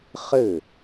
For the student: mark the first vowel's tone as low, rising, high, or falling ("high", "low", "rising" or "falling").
falling